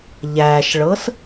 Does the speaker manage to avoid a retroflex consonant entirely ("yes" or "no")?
no